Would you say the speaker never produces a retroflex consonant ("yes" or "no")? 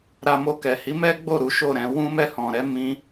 yes